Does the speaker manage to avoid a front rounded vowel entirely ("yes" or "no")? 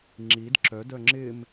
no